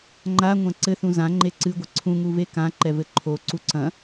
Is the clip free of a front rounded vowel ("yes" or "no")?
yes